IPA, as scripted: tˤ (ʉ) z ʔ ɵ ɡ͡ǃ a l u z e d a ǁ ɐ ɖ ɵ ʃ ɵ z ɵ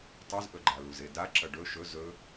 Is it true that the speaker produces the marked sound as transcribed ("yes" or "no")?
yes